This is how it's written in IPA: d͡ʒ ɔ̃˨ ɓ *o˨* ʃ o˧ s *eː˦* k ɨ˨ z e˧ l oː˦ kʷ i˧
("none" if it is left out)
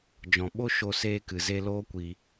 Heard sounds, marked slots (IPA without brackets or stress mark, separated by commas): o˦, eː˧